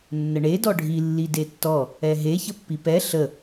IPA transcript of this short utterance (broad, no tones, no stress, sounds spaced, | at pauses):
nː ə ɳ e d ɔ ɖʱ i lː i d e tː ɔ | ɛ ɦ e ç ə pː i p ɛ ɬ ə